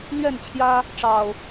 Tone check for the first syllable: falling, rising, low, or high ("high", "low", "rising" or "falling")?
falling